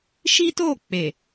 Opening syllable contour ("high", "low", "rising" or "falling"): high